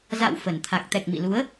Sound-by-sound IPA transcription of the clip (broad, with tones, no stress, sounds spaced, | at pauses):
z a̰˧˨ w f ə˧˩ n t̪ʰ a˨˩ k̚ t̪ ɛ˨˩ k̚ m ḭ˧˨ l u˨˦ ə̯